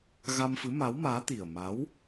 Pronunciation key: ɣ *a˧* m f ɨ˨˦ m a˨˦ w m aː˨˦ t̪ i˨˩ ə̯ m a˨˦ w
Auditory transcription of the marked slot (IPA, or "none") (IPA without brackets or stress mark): a˧